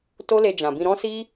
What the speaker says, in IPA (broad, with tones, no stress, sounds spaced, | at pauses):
t o˦ l e˧ d͡ʒ ã˨ b ĩ˧ ɾ ɔ̃˦ s i˦